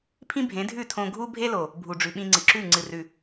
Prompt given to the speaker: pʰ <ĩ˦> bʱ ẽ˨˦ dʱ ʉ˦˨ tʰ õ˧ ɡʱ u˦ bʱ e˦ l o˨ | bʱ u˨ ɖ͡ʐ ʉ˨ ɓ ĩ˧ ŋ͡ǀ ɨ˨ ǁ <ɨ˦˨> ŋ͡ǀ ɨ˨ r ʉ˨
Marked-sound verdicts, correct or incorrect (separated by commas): correct, incorrect